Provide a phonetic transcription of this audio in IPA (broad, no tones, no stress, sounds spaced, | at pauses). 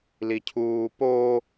l i cʰ uː p o